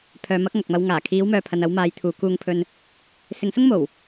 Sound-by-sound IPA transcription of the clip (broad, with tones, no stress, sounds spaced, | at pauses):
pʰ œː˨˧ m ɐ˨˥ k̚ ŋ ɐ˨ k̚ m ɐ˧ w ŋ aː˨˩ kʰ iː˨˧ w m œː˨ pʰ ɐ˨ n ɐ˨˧ w m aː˨˧ j t̪ʰ uː˨˧ k uː˧ ŋ pʰ ɵ˧ n | s ɪ˨˧ ŋ s ʊ˥ ŋ m o˨˩ w